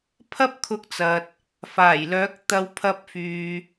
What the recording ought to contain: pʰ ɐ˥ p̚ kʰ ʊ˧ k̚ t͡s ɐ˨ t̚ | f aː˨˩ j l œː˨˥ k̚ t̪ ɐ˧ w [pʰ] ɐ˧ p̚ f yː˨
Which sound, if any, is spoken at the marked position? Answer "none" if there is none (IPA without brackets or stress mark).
pʰ